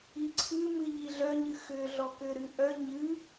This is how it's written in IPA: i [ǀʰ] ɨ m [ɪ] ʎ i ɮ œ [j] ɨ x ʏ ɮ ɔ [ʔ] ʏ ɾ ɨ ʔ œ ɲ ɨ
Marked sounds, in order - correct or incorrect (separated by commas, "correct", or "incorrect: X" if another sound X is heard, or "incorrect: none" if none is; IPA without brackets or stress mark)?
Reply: correct, incorrect: ɨ, incorrect: ɲ, incorrect: k